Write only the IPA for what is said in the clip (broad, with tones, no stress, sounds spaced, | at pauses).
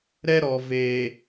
ɾ ɛ˦ ɾ ɔ˨ v e˨